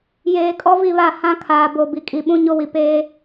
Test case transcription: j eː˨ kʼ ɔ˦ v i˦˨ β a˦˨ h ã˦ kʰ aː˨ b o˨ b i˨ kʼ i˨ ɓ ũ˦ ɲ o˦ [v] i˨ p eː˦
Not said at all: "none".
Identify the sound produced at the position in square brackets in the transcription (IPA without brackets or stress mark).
w